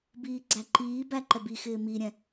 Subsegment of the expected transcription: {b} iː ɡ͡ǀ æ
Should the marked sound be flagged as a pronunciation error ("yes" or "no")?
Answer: no